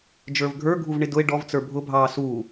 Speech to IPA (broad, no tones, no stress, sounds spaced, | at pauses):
d͡ʒ ə˞ v ɡʱ ə˞ ɡʱ u v ɳ ɪ d ʊ e̯ ɖ ɔ v t͡s ə˞ bʱ ʊ bʱ ɑː s uː